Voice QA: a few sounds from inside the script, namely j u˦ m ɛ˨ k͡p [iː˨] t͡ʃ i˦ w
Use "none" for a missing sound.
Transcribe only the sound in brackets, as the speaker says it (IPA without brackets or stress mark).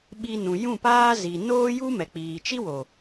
iː˨